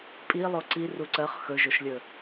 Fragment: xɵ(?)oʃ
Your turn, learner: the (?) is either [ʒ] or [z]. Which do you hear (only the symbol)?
ʒ